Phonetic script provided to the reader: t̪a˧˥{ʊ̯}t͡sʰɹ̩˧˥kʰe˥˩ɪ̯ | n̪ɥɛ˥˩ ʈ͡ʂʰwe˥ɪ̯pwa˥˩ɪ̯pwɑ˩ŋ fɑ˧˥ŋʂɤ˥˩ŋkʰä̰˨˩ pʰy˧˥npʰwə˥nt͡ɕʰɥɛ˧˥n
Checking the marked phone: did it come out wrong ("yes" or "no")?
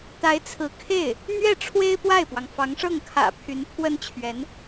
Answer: yes